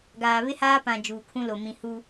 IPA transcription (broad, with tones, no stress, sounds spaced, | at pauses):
ɡ aː˨ β ɪ˦ h aː˦ p ã˨ d͡ʒ uː˨ kʰ ũ˦ l o˨ m ĩ˨ h u˦